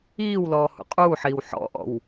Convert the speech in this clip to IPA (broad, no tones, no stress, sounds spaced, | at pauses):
iː w l ɔː h ṵ qʼ uː ħ iː w ħ ɔ̰ ʔ ɔ̰ w